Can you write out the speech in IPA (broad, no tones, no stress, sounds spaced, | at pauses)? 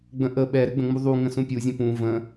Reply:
ɡ͡b ə̃ ʔ ə ɓ ɛ ɾ ɘ ɡ͡b ə̃ ŋ͡m u ðˤ u ŋ ə̃ s ũ pʲ u zʲ ə̃ p ũ v ə̃